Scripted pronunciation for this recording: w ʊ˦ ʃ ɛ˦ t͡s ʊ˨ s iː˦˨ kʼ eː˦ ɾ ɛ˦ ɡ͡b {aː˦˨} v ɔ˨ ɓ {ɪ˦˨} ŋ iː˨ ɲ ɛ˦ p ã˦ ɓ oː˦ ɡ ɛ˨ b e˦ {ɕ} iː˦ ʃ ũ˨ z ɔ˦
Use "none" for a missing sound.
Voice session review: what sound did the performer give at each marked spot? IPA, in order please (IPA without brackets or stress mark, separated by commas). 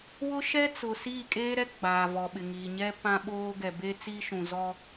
aː˨, ɪ˨, t͡s